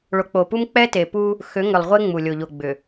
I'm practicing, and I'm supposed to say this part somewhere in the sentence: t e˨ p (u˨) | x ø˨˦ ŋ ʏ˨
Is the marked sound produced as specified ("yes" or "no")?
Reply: no